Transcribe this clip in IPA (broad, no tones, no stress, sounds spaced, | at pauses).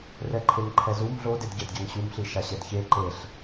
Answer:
r ɛ ǃʰ e ŋ ǃʰ ɛ z u m ɮ o d e d ɟ ɛ d ɟ a ŋ ɕ u m ɬ i ʃ a ɕ ɛ d ç e ǃ e ɬ